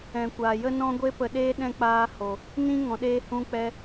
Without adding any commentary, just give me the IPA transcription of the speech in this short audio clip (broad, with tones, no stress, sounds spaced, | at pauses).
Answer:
ɛ̃˨ kʷ aː˨ j ə˦ n ɔ̃˦ ɡʷ e˧ p ə˨ ɗ eː˧ ɗ ɛ̃˧ k͡p aː˧ h o˨ | n ĩ˦ ŋ ɔ̃˨ ɗ eː˦ h ũ˦ k͡p ɛ˦